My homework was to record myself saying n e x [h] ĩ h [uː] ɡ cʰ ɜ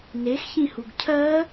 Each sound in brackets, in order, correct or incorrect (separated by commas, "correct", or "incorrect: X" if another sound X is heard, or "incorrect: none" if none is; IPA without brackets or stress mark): incorrect: ç, incorrect: u